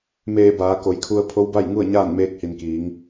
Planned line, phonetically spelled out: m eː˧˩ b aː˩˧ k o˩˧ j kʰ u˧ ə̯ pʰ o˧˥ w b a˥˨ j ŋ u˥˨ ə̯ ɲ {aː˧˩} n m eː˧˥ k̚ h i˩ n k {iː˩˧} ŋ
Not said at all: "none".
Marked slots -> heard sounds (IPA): aː˥˨, iː˩˧

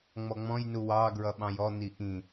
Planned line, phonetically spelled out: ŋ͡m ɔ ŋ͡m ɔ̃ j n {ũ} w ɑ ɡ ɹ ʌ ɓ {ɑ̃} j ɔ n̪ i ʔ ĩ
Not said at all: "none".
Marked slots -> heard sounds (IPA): u, ɑ̃

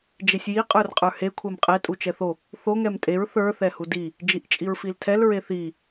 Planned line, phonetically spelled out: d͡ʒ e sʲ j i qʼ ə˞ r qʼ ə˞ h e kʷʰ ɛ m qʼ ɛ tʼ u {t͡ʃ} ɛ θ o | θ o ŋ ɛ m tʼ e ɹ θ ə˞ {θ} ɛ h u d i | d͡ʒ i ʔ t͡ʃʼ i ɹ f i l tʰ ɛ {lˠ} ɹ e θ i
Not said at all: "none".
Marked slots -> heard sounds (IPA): t͡ʃ, θ, l

